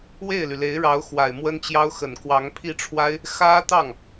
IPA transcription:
we˥˩ɪ̯ly˩le˧˥ɪ̯ɻɑ˧˥ʊ̯ xwa˨˩ɪ̯mwə˥nt͡ɕjɑ˥ʊ̯xə˨˩n kwɑ˧˥ŋpʰi˥˩ ʈ͡ʂʰwa˥ɪ̯ | xä˥t̪ɑ˥˩ŋ

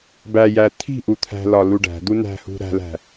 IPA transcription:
bæjæ t̪ʰi̤ʔu t̪ʰæ̤lɒ luɖæ̤d̪u næ̤hṳ ɾæ̤læ̤

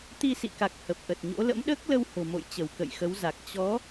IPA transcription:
t̪i˧sḭ˧˨ka˨˩k̚ hə˨˩p̚ʔə˨˩t̚ɲo̰˧˥ lə̰˧˥mɗəː˦˥k̚lə˧w ho̤˨˩mo̰˧˨jt͡ɕə˧˩w kə̰˧˨jxə˨˦wza˨˩k̚ t͡ɕɔ˨˦

